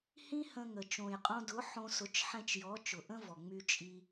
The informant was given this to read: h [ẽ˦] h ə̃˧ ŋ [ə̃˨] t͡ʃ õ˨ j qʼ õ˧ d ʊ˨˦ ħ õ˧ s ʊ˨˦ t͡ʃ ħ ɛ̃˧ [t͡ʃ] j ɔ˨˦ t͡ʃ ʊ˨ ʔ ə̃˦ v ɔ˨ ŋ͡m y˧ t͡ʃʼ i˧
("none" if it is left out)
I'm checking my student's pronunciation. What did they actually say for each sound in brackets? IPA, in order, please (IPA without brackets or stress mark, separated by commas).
ĩ˦, ə˨, t͡ʃ